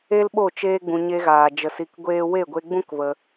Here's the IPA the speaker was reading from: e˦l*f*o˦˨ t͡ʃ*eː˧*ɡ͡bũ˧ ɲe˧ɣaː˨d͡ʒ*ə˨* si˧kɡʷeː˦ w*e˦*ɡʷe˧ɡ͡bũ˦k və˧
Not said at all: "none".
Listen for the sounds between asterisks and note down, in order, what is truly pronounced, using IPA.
ɓ, eː˦, ə˨, e˦˨

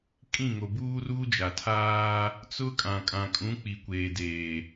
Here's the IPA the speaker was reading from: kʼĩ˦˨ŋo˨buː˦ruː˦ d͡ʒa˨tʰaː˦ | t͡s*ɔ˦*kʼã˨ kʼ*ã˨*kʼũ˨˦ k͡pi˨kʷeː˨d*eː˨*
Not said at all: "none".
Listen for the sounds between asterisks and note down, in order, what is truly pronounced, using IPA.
ʊ˦, ã˨, eː˨

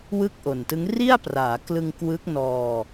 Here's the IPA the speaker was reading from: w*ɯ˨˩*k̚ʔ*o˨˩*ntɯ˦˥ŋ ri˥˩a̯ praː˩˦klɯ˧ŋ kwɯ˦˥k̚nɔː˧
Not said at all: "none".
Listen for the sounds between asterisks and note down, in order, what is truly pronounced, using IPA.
ɯ˥˩, o˨˩

